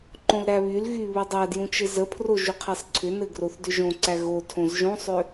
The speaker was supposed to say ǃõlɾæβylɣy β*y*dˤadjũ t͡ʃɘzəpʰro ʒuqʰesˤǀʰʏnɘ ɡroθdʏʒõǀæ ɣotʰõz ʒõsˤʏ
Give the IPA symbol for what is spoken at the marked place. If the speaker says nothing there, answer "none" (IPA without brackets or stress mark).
u